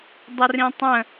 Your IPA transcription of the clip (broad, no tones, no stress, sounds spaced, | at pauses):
dˤ ə r ĩ tˤ ə̃